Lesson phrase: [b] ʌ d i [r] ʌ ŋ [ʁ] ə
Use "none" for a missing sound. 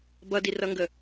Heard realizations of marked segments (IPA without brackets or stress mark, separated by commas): b, r, ɡ